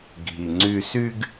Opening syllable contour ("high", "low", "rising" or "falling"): low